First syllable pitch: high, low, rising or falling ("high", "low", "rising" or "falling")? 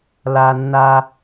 high